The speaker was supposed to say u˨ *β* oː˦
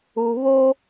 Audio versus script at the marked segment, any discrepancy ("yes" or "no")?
no